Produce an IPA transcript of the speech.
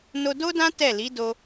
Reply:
n o˧ d o˦ d ã˦ t ɛ˦˨ l i˨˦ d o˧

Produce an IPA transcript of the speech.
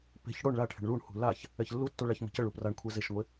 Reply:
p e̤ ç ɽ o ɳ ɭ a ʈʰ e̤ ɳ ɭ u ɳ h ṳ l a ç | ɛ ç lː u tː o ɭ a ç m ə̤ c ə ɭ u p r a ɳ kʷʰ ɛ z e ʃ ŋʷ e

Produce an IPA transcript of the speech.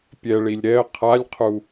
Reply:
pʲ ɛ ɭ i lʲ ɾ ɛ ə̯ qʰ a lʲ qʰ u

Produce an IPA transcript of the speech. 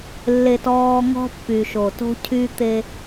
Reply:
lː e˨ t ɔː˨ ŋ ɔ̤˦ pː y˨ ʃ o˨ t o̤˦ cʰ y˦ t̪ e˦

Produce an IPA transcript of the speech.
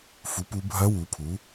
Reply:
f u˨˥ p u˦˥ bʱ ɐ˦˥ w u˨˥ pʰ u˨˥

